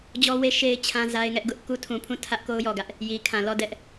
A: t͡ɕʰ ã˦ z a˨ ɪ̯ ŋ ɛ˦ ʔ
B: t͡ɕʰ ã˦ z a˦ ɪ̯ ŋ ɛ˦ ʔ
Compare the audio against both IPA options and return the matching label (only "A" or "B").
B